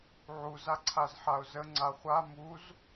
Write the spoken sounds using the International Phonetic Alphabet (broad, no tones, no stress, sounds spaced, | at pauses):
ʕ u z a ǀʰ a z ħ a ʊ̯ z ə ŋ͡ǀ a χʷ a m u z